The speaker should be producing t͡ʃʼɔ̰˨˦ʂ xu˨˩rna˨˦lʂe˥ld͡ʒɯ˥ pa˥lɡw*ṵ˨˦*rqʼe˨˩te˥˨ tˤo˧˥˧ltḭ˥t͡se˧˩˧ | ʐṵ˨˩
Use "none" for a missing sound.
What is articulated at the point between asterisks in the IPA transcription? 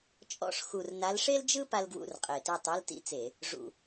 ṵ˧˥˧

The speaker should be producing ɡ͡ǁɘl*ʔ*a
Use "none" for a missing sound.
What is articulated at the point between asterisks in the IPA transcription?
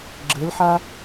ħ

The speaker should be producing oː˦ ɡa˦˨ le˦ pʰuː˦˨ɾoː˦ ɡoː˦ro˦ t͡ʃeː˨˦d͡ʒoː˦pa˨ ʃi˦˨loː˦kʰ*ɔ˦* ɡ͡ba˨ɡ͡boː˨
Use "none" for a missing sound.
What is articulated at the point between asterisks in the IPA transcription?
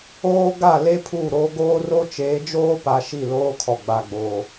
ɔ˨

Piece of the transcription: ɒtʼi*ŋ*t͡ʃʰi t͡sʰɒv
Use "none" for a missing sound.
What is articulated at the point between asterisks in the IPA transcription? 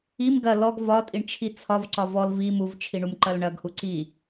ɳ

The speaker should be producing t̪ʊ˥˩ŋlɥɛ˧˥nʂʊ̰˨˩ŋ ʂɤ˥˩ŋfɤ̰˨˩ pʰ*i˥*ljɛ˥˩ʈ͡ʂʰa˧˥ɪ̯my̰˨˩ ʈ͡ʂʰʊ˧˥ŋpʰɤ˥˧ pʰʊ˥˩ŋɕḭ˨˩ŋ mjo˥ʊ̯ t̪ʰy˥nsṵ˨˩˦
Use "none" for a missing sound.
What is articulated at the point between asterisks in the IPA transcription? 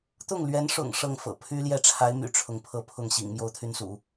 y˥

